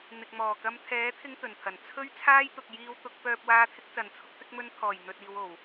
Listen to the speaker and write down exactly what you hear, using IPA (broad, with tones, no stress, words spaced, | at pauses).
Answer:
n̪ɪ˨k̚mɔː˨˩kɐ˧m t̪ʰɛː˨˥t̪ʰɪ˧ŋ t̪ɵ˨˩nt̪ʰɐ˨˩n t͡sʰɵ˥ɥt͡sʰaː˥jt̪ʊ˨k̚ jiː˨wt̪ʊ˨k̚pœː˨p̚ waː˧t̪ʰɪ˧k̚t͡sɐ˨˩nt͡sʰʊ˧k̚ t̪ɪ˧k̚mɵ˧nt̪ʰɔː˨˩j n̪ɵ˨t̚iː˨wo˨˩w